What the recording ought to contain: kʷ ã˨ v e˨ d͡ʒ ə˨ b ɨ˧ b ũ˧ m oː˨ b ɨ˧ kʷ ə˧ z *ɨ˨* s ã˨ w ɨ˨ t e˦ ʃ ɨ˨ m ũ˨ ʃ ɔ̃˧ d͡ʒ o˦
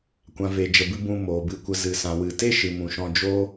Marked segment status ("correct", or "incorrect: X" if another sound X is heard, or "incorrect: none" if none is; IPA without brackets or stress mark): correct